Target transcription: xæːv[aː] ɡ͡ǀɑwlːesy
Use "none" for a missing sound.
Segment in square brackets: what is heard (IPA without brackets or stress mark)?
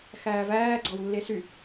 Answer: æː